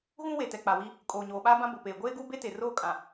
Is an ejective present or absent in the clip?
present